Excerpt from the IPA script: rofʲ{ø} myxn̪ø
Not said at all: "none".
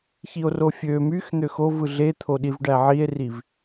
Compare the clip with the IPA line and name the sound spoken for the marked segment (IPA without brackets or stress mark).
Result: ø